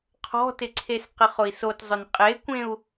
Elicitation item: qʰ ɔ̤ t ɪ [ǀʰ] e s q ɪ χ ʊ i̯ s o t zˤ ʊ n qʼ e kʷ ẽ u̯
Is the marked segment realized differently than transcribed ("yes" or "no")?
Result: no